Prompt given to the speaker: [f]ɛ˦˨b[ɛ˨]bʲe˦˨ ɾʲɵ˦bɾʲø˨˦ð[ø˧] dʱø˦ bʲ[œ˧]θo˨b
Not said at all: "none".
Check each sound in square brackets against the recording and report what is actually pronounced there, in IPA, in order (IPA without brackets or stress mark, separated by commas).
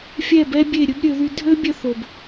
fʲ, ɛ˦, y˧, œ˧